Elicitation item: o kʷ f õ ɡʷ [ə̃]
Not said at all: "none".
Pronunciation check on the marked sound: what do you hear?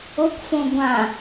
ã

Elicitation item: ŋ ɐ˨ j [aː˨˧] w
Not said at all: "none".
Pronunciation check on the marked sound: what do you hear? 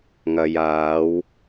aː˨˧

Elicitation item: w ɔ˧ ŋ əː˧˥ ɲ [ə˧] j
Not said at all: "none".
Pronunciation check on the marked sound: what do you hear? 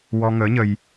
ə˧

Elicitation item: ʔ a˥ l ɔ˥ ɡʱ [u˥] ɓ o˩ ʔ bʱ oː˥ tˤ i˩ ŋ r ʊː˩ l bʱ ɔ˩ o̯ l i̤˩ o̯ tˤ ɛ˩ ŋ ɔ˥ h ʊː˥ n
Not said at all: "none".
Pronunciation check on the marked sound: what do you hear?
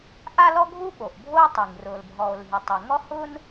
u˥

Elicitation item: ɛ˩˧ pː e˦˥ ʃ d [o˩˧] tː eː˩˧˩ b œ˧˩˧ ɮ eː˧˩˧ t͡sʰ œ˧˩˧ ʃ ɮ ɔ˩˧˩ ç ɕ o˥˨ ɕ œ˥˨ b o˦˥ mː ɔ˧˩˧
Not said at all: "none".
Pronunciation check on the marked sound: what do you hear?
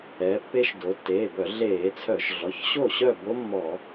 o˩˧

